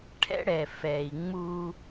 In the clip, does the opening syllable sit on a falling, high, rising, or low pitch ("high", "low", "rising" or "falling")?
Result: high